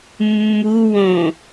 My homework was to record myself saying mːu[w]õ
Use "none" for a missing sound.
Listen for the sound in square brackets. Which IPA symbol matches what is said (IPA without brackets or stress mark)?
w